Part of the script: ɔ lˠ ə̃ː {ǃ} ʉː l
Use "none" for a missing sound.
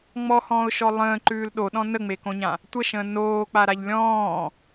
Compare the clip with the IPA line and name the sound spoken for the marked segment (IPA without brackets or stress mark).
ǃ